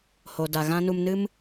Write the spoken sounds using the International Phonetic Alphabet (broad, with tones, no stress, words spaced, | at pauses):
ho˧da˧ɣã˦ nu˧mnɨ˦m